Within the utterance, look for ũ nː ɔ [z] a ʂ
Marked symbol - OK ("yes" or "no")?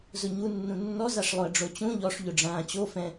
yes